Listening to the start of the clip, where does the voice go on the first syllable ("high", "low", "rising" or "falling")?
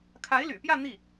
rising